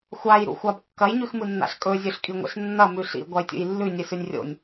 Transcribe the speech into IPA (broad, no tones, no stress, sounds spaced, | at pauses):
xʷ a j ɾ ṵ xʷ a b kː ɐ j ɲ ʉ x m ɨ nː a̰ ɬ kʼ ɵ zʲ ɵ ɬ kʼ i ŋʷ ḛ ɬ nː ɐ m ʉ ɬ ḭ ɡʷ a j tʲ ṵ j lː ʉ nʲ ɨ s ʉ nʲ rʲ o̰ nʲ